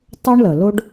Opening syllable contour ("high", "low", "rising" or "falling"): high